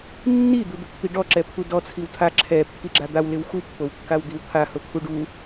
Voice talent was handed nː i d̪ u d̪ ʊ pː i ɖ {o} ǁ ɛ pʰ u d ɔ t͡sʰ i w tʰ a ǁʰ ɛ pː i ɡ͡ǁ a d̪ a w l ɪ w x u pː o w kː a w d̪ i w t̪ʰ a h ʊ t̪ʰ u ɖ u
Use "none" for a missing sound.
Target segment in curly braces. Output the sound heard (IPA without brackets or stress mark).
ɔ